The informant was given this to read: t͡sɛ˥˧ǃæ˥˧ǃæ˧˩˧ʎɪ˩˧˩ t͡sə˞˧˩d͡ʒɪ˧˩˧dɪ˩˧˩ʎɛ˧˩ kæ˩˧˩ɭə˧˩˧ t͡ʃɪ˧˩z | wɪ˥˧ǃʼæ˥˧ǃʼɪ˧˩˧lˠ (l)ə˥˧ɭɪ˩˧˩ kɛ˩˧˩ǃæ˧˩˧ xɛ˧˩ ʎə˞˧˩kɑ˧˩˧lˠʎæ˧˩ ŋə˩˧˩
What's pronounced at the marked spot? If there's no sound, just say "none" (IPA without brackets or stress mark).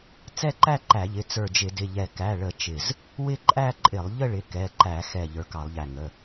ʎ